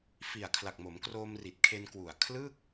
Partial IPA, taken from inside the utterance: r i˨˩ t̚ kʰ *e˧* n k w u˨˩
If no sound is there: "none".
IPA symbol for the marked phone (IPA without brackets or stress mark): e˧